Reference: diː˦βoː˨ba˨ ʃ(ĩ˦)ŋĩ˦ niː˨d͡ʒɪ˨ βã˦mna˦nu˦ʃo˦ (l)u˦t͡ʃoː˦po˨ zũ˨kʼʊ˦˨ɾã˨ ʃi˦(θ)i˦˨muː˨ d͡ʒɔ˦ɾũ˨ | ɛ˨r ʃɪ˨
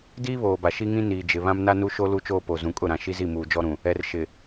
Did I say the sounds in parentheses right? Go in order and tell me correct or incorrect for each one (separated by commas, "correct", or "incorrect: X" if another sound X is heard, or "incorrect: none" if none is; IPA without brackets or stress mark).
incorrect: i˦, correct, incorrect: z